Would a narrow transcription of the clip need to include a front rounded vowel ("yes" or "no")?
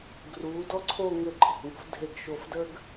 no